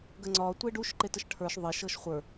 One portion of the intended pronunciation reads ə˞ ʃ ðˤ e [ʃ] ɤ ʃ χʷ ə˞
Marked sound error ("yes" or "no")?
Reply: no